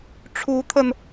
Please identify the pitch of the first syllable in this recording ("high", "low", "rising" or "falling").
rising